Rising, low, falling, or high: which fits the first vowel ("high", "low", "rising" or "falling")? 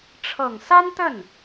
low